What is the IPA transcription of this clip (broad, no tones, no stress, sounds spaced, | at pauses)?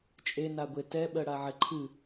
t͡ʃʼ e n a ɡʷ e t ɛ ɓ ɜ ɽ a ʕ ɛ ǃʰ ɨ